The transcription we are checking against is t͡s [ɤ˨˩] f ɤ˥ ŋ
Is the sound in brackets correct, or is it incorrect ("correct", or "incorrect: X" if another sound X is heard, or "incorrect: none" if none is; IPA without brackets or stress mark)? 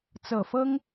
correct